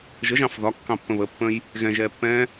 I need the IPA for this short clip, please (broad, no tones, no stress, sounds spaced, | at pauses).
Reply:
ʒ ə ʒ ɑ̃ f ð ɒ kː ɑ̃ pː ə̃ β ə pː ə̃ j | ɣ ɛ̃ ʒ ɛː pː ɛ̃ː